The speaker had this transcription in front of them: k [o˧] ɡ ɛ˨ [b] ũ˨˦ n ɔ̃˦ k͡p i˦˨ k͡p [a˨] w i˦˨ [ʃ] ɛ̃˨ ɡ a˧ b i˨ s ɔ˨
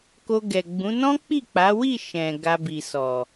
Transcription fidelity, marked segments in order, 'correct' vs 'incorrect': correct, incorrect, incorrect, correct

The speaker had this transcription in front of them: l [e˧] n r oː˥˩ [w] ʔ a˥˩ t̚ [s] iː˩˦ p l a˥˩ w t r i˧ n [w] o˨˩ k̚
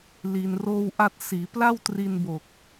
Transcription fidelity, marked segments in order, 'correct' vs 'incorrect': incorrect, correct, correct, incorrect

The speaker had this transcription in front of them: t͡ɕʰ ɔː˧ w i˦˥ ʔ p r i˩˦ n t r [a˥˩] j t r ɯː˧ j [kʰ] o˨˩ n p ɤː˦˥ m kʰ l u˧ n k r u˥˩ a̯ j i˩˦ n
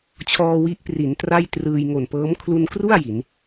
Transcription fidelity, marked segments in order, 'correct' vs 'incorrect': correct, incorrect

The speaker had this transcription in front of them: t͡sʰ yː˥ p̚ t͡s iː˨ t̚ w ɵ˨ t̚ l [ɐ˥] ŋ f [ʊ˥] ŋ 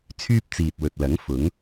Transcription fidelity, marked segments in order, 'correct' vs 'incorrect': incorrect, incorrect

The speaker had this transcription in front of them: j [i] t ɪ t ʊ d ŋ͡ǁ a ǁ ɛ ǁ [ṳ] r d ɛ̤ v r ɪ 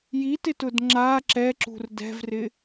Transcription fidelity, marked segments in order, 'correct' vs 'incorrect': correct, correct

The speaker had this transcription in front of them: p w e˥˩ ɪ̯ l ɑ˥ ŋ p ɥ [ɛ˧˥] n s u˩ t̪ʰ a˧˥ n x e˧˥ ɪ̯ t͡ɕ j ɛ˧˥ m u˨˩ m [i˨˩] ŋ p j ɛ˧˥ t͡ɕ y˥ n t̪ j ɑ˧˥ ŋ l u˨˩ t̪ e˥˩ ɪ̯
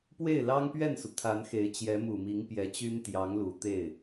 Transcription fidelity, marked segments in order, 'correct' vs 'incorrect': incorrect, incorrect

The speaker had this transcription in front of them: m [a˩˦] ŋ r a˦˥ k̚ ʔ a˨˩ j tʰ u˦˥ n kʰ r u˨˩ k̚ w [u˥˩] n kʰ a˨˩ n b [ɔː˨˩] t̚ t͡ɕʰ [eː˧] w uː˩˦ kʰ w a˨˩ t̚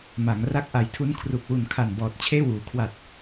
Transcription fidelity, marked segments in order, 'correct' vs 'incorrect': correct, incorrect, correct, incorrect

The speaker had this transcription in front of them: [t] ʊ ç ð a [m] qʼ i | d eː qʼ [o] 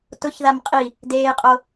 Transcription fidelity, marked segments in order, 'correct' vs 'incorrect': correct, correct, correct

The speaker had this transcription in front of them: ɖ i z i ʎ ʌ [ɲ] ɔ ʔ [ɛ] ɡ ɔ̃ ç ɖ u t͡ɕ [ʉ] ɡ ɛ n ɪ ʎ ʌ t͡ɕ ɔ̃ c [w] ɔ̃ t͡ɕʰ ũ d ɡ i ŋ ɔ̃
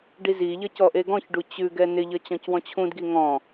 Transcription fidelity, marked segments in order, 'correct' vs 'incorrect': incorrect, incorrect, correct, correct

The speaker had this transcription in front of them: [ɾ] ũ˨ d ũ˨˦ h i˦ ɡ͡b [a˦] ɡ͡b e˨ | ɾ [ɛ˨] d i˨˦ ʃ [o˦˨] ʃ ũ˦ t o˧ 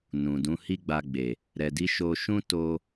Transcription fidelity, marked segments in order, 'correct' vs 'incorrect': incorrect, incorrect, correct, incorrect

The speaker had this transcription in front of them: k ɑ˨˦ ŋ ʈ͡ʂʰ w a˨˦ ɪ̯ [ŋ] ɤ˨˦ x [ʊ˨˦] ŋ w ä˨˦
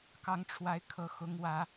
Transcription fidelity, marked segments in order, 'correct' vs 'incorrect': incorrect, correct

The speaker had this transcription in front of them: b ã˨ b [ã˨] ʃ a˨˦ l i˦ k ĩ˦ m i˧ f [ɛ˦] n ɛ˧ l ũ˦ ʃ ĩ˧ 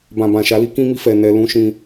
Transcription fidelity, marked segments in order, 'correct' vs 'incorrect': correct, incorrect

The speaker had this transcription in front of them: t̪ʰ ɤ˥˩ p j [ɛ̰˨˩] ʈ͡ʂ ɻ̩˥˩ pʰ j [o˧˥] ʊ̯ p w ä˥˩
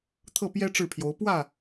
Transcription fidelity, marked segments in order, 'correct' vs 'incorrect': incorrect, correct

